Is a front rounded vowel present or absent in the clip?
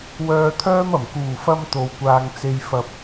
present